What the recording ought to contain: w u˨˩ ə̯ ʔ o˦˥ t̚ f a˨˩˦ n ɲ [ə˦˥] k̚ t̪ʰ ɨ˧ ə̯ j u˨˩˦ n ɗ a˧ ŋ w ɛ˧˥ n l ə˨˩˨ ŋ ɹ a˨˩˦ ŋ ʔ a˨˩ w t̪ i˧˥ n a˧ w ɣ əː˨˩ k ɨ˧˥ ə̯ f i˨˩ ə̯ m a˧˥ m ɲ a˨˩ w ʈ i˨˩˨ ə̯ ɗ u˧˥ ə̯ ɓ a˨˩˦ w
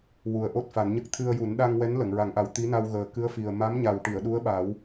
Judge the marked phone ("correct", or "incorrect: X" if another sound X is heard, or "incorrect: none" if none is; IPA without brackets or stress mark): correct